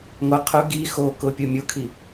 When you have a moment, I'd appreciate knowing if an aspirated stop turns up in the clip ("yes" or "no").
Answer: yes